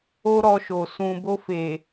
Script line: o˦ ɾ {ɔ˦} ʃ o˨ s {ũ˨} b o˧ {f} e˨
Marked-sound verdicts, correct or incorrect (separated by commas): incorrect, correct, correct